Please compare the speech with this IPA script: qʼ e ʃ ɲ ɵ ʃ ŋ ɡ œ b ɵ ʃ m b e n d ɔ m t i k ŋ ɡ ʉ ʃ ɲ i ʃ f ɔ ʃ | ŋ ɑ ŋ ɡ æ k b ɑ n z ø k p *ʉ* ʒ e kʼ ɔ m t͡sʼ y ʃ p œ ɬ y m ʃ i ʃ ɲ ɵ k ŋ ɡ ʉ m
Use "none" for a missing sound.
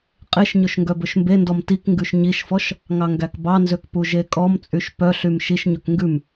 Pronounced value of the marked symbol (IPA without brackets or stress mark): u